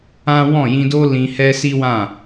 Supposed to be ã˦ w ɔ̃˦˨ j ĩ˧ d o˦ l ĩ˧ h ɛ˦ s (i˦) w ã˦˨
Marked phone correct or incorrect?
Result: correct